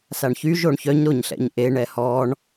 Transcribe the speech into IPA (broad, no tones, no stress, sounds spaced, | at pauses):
s a ɳ ç y ʒ o ɳ ç œ ɲ ɾ o ɲ ɬ ɛ̰ ɲ ʔ e ɳ ɛ h ɔ ɳ